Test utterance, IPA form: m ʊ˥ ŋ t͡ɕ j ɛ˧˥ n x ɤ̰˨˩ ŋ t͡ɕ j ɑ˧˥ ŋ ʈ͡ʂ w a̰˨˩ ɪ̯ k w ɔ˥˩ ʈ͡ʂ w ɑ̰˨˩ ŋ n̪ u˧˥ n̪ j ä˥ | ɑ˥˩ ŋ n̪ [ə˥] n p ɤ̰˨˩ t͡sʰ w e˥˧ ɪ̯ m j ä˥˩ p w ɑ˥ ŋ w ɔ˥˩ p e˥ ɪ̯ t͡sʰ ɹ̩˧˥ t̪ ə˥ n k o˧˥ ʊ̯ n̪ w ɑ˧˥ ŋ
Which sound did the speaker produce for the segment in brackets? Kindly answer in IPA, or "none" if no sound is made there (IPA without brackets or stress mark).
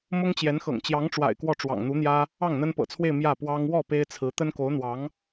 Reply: ə˥